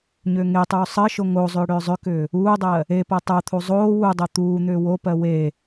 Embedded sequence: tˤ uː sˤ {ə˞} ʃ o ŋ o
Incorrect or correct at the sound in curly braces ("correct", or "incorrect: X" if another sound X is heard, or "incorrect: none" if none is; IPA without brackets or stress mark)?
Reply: incorrect: ɜ